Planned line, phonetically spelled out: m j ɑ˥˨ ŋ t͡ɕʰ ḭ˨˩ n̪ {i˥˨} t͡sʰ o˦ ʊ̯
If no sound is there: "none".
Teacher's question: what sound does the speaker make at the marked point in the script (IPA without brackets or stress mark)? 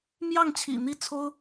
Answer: i˥˨